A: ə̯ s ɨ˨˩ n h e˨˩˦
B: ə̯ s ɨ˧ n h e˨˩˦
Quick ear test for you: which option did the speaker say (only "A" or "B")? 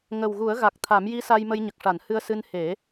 B